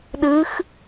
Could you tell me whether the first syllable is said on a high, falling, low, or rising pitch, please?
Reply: rising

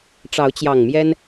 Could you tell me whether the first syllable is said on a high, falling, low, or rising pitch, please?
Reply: rising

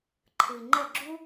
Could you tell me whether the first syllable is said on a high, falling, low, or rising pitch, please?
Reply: low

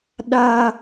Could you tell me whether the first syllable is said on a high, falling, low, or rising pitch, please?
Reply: high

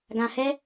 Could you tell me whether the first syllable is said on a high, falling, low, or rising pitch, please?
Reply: low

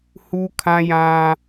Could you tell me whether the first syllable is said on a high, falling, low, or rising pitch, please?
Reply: high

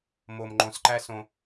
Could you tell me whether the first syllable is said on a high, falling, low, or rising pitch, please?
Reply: low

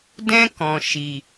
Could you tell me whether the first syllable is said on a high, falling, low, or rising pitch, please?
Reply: high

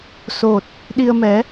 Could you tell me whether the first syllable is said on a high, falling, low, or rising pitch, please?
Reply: low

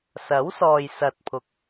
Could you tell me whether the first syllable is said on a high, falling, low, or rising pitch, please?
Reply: rising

